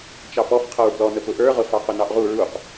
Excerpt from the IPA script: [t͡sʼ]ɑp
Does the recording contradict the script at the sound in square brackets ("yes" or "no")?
yes